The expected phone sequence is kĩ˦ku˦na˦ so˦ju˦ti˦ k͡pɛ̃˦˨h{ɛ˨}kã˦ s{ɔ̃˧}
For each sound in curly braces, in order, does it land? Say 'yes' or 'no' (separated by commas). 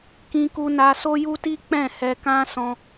no, yes